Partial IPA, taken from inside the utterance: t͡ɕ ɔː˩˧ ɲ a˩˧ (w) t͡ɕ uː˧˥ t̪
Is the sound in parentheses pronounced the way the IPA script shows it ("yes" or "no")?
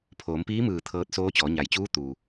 no